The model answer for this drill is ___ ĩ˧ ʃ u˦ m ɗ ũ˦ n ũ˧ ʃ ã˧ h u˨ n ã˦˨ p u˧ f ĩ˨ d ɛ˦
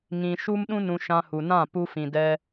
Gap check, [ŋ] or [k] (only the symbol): ŋ